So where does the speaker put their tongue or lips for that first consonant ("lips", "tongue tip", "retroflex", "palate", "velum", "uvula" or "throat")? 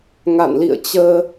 velum